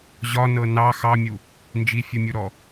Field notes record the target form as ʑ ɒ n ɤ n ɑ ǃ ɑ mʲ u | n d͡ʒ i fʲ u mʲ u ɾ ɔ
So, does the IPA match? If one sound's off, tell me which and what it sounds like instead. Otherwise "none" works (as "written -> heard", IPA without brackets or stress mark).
ǃ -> x